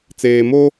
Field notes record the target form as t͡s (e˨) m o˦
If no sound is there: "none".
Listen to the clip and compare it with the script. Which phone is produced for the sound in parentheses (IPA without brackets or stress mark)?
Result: eː˨